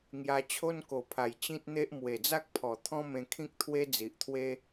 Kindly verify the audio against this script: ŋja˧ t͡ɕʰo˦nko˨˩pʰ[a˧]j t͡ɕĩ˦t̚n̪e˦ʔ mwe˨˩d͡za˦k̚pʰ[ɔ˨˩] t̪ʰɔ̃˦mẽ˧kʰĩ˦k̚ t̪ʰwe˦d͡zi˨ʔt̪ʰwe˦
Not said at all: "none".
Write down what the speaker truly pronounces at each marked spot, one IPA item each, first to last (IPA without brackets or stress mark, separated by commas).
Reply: a˨˩, ɔ˨˩